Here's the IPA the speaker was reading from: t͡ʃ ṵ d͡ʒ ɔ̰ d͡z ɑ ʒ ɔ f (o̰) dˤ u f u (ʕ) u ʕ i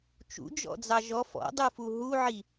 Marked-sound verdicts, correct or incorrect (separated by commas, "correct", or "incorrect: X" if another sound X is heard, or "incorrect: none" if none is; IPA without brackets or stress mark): incorrect: ɔ̰, incorrect: ɦ